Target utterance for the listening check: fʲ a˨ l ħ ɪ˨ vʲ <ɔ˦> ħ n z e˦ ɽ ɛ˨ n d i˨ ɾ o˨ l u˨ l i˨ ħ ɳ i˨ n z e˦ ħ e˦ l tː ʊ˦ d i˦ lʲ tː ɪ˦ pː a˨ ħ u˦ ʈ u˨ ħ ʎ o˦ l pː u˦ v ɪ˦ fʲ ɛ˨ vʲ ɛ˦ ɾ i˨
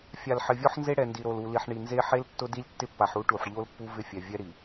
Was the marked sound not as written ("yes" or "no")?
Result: no